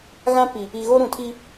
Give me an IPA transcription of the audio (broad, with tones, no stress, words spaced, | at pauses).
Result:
ɣã˦pi˨ | i˨ɣo˦ ɾũ˨tʰi˦